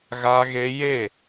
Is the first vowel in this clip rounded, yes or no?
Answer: no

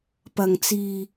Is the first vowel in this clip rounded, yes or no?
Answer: no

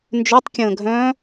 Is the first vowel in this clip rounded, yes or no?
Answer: yes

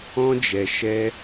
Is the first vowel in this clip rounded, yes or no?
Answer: yes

